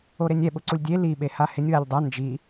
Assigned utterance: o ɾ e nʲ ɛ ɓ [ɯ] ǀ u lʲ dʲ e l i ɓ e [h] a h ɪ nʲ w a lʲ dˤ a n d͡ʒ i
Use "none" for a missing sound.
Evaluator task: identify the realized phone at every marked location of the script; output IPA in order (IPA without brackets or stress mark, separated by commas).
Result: ʊ, h